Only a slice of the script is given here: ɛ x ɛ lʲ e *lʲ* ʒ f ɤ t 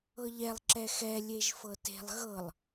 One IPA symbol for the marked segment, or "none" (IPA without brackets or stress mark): none